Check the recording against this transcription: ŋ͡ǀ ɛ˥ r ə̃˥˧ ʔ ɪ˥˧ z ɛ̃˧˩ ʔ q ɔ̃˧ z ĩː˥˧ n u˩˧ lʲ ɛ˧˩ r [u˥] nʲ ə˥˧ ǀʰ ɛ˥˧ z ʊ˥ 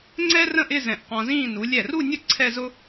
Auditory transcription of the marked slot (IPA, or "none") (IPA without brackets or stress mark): u˥˧